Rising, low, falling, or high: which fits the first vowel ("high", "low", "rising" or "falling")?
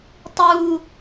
high